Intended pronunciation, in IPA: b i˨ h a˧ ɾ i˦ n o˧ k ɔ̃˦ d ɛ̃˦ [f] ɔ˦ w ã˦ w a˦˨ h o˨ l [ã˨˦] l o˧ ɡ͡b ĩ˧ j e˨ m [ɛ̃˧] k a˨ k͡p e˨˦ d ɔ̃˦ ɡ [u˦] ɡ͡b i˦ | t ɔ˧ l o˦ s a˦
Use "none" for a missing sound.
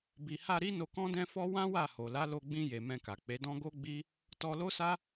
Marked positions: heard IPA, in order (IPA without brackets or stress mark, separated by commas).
f, a˨˦, ɛ̃˧, o˦